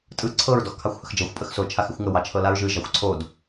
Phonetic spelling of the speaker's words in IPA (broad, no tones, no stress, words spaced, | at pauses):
tʼɯ ǀʰɤɹ dɔxkʰɑxʷhəxd͡ʒɤxʷ pʼəxso t͡ʃʰaxɪxʷŋə wɑt͡ʃʰɤlaɹʒɯ ʒɑxʷǀʰod